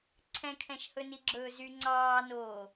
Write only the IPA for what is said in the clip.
ǀʰ ɛ̃ kʰ ɛ̃ ʃ h ɵ n i ɡ͡ǁ ɵː z y ŋ͡ǀ ɑː n oː

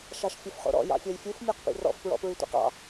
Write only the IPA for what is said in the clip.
ʃ ɑ ʃ fʲ ɵ f χ o̰ ɾ ɔ̰ j ɑ̰ fʲ ɔ j fʲ u f mʲ ɔ q p ḭ r ɔ̰ f p ɹ ɔ̰ p ɹ y tʷ ḭ q ɑ̰

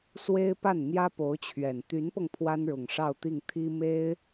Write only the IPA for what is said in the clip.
s w e˥ ɪ̯ p a˥˩ n n̪ j ä˥ p o˧˥ ʊ̯ t͡ɕʰ ɥ ɛ˨˩ n t̪ y˧˥ n p ɤ˧ ŋ pʰ w a˥ n ɻ ʊ˨˩ ŋ ʂ ɑ˥˧ ʊ̯ t̪ i˥˩ ŋ t̪ʰ i˥ m e˥ ɪ̯

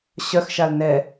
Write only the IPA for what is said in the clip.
ɕ œ x ʃ a l n ɛ

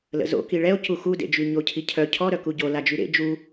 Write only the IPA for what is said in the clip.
l ə̰ z o̰ k i ɭ ɛ o̯ c u x u d ḛ d͡ʒ y ɲ o cʰ i cʰ œ cʰ ɔ ɾ œ k u ɟ o l a d͡ʒ y ɾ ḛ d͡ʒ u

